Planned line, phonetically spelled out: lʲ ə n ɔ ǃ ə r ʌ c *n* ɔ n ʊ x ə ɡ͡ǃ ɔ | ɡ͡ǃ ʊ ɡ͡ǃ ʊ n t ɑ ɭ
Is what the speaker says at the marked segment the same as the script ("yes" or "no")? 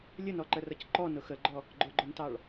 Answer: no